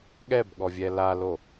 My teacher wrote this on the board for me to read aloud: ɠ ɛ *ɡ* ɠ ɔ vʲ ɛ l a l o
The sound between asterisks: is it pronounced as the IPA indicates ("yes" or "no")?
no